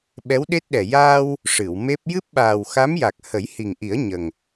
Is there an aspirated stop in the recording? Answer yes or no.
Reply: no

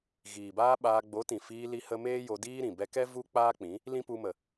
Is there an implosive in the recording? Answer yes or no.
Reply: yes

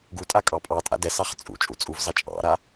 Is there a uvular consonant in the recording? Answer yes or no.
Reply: yes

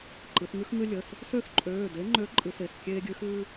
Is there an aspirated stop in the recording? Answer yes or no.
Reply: no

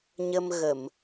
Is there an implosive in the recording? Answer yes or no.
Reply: no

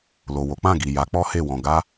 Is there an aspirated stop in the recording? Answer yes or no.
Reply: no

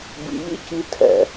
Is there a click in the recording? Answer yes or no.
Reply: no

